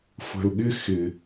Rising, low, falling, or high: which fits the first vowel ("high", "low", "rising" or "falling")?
low